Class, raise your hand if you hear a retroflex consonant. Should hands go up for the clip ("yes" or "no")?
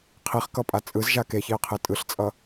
no